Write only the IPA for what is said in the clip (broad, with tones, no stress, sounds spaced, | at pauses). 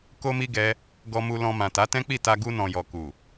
k o˧ m i˧ ɡ ɛ˦ | ɡ ɔ˧ m u˧ l ɔ̃˧ m ã˨ t a˨˦ t ɛ̃˦ k͡p i˦˨ t a˧ ɡ u˧ n ɔ̃˨ j ɔ˨ k u˨